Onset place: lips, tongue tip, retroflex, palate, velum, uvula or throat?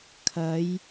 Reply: velum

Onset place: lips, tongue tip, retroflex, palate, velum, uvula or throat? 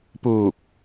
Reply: lips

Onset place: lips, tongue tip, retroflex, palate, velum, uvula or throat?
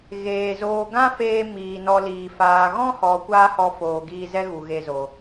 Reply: velum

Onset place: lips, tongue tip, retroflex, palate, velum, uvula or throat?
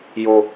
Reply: palate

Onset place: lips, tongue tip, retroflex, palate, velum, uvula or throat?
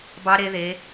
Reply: lips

